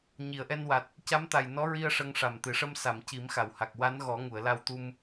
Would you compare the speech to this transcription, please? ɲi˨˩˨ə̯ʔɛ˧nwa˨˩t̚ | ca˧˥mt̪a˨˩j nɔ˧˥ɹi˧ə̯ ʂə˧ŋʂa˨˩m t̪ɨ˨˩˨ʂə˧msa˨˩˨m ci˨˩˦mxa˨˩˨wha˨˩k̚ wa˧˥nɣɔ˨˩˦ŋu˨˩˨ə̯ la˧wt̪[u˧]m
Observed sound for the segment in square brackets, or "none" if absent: u˧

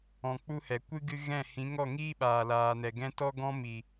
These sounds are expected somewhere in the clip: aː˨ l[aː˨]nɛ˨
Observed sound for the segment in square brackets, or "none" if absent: aː˨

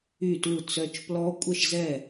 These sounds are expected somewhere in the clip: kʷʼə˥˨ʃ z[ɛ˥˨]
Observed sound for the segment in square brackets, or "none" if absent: ɛ˥˨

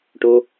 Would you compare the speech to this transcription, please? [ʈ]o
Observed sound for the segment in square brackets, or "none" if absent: ʈ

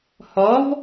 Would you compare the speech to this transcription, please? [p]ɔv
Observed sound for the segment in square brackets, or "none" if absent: h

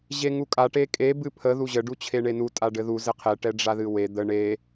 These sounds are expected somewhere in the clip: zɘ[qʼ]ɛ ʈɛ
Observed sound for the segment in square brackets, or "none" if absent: qʰ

